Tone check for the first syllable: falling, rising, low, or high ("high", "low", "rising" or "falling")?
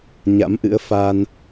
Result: rising